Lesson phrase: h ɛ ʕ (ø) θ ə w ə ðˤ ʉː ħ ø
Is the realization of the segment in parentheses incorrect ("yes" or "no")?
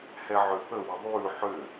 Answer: no